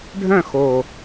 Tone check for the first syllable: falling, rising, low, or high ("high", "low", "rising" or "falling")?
falling